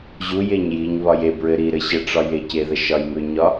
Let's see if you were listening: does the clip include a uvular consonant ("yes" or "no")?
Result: no